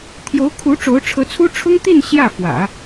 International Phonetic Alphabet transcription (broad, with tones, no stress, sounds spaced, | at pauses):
t̪ʰ j o˧˥ ʊ̯ kʰ u˧˥ ʈ͡ʂ o˧˥ ʊ̯ ʈ͡ʂʰ ɤ˧˥ t͡sʰ u˥ ʈ͡ʂʰ ʊ˥ ŋ t̪ i˥˧ n ɕ j ä˥˩ f w ä̰˨˩˦